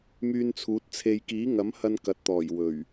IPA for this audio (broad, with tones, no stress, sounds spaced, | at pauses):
m yː˧ n t͡sʰ uː˨˥ t̚ t͡sʰ e˧ j k iː˨˥ ŋ ɐ˨˥ m h ɐ˧ n k ɐ˨ t̚ t̪ ɔː˨˩ j w ɵ˨˩ ɥ